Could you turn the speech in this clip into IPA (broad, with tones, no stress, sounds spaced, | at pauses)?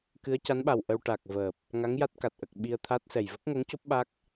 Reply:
k ɨ˧˥ ə̯ c a˧˥ n ɓ a˨˩ w ʔ ə˧ w ʈ a˨˩ k̚ v əː˨˩ p̚ | ŋ a˧˥ ŋ j a˦˥ t̚ k a˨˩ t̚ ʔ ə˨˩ k̚ ɓ i˧ ə̯ t̪ʰ a˦˥ t̚ s ɛ˨˩ j v ə˦˥ k̚ ŋ o˧˥ ŋ c o˦˥ p̚ ɓ a˦˥ k̚